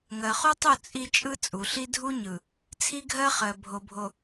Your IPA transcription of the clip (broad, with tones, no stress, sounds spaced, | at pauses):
ŋ ɜ˨ χ u˦ tˤ u˦˨ t͡sʼ i˦ t͡ʃʼ ɯ˦ t͡sʼ u˨ ɬ i˦ dʱ u˦ ɲ ɯ˨ | t͡sʰ i˦ ɡʱ ɜ˦ χ ɜ˨ bʱ o˨ bʱ o˨